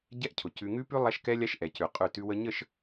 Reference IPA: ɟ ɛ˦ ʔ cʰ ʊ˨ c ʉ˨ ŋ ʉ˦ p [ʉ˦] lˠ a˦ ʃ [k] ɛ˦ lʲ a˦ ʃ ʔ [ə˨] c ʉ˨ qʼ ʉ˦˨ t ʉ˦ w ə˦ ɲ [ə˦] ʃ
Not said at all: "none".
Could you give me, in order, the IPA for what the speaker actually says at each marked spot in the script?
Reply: ʉ˦, k, ɛ˨, ə˦˨

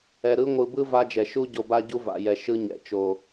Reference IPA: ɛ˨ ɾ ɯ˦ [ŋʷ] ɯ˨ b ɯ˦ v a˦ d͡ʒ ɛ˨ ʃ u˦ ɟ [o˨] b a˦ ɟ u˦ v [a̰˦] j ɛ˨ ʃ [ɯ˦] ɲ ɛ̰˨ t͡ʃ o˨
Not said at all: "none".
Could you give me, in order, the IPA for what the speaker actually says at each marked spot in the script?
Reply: ŋʷ, o˨, a̰˨, ɯ˦

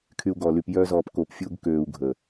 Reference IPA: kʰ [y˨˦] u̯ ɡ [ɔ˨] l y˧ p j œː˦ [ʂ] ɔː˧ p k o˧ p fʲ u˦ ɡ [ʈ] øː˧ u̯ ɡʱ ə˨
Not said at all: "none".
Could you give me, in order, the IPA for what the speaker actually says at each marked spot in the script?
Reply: y˧, ɔ˨, z, k

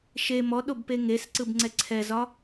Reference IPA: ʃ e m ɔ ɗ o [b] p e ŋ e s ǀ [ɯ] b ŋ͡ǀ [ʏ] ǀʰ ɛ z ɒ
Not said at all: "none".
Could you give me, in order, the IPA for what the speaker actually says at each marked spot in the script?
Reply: b, ɯ, ɛ

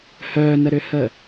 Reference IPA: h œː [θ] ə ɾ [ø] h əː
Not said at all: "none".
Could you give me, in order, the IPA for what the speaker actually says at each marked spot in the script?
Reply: n, ø

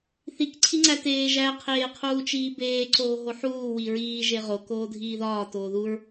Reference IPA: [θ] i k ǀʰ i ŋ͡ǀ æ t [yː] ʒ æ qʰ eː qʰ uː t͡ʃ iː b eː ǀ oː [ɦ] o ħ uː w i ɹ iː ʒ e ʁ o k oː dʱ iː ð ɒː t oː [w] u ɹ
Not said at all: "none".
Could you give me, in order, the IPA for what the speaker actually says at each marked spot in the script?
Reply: θ, eː, ɦ, ð

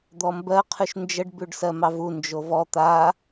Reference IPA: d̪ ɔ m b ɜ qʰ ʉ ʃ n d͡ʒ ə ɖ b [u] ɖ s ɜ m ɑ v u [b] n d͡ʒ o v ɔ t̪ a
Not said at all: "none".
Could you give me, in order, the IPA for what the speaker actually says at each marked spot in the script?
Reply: ʉ, none

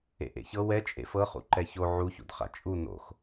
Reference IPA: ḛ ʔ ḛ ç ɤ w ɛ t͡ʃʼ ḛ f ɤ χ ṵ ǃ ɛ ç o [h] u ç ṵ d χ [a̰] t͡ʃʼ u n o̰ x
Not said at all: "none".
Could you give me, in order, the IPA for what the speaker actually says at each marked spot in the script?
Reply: ʕ, a̰

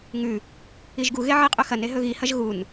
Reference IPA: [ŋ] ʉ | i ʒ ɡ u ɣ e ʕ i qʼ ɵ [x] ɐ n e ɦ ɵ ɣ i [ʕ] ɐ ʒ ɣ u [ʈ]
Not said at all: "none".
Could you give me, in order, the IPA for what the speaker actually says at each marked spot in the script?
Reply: ŋ, x, h, n

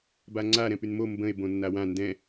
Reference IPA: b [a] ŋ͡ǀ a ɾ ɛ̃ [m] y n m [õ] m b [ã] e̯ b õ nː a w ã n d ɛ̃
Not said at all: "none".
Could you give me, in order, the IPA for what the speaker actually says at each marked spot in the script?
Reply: a, p, o, ə̃

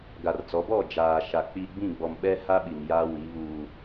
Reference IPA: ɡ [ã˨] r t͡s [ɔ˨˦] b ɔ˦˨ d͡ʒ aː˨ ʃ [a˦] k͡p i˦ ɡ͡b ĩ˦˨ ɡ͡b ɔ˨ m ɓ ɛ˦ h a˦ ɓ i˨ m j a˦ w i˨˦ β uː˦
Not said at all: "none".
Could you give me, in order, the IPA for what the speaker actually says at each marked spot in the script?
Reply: a˨, ɔ˨˦, a˨

